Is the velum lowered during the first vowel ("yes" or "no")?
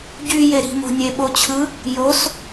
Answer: no